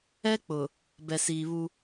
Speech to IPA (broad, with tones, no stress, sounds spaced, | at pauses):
ɛ˦ k͡p ʊ˨ | b ɛ˨ s iː˨ β u˦